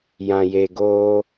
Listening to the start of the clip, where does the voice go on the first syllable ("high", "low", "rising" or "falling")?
low